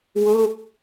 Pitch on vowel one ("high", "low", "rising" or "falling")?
falling